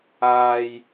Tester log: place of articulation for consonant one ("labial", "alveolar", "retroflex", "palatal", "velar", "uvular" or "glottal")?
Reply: palatal